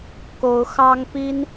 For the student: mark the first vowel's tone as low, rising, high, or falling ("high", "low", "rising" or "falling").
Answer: rising